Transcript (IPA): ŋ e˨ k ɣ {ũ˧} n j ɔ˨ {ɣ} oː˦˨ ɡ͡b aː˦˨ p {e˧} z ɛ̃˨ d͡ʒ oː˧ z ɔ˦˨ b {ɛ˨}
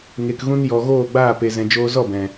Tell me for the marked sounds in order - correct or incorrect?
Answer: incorrect: ũ˦, correct, correct, incorrect: ɛ̃˨

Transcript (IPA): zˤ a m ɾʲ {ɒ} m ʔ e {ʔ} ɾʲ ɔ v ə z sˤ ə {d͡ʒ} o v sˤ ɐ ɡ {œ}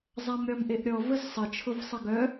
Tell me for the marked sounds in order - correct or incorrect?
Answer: correct, correct, incorrect: t͡ʃʰ, correct

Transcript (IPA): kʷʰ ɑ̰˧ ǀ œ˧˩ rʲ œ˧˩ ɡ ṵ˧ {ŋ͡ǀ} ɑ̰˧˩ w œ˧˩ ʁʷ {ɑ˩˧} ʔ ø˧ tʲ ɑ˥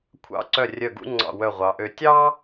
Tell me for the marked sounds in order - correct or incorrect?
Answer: correct, correct

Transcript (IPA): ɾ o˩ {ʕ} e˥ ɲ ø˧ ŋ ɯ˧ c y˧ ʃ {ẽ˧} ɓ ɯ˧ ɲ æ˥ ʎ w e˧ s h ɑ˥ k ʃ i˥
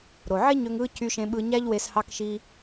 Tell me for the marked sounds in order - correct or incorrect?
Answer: correct, correct

